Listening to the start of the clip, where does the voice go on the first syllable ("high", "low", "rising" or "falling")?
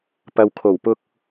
low